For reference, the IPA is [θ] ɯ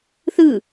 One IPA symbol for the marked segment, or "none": θ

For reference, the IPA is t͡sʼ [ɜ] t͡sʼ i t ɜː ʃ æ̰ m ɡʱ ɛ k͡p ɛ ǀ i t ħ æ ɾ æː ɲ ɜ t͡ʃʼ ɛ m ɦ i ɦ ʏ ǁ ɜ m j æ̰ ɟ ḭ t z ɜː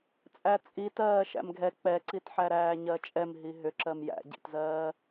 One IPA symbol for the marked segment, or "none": æ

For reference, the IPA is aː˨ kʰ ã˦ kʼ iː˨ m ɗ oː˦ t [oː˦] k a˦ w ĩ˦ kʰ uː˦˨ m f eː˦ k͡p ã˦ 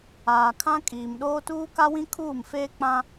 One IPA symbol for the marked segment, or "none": uː˦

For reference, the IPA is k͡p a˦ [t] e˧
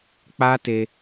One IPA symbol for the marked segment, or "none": t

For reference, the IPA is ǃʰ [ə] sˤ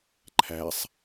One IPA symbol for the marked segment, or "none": æ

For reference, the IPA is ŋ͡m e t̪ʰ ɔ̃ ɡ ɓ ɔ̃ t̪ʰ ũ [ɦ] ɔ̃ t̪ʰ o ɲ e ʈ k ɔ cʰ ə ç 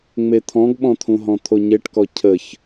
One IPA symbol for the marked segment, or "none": ɦ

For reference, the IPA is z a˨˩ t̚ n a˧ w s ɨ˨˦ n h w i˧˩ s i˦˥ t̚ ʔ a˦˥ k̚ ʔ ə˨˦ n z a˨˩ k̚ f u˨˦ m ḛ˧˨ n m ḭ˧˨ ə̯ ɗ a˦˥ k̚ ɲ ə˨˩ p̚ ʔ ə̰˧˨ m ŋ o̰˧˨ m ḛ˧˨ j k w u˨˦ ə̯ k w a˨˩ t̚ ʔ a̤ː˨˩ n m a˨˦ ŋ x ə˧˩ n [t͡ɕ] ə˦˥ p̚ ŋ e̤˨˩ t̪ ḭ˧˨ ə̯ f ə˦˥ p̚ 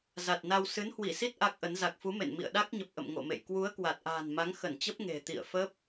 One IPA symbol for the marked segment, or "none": t͡ɕ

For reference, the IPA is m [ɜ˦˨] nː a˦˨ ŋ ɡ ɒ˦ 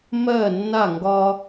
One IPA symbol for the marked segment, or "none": ɜ˦˨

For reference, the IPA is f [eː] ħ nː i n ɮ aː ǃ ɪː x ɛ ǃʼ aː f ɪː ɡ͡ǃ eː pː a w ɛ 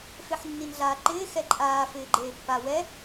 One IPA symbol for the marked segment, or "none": e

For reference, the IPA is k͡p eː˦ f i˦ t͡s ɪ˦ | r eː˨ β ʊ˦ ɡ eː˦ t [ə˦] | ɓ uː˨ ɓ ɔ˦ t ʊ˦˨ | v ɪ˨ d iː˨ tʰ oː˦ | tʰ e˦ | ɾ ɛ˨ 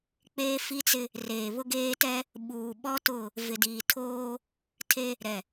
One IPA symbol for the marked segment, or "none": ɛ˦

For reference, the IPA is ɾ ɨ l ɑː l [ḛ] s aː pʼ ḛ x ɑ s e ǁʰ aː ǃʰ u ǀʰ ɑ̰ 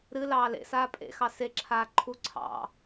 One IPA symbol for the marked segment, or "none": ḛ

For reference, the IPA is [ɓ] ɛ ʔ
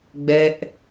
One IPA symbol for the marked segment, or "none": ɡ͡b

